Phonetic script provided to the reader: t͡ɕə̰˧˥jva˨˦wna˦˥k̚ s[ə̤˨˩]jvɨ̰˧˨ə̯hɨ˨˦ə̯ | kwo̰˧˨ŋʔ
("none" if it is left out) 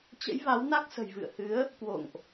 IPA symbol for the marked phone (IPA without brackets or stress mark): ə̤˨˩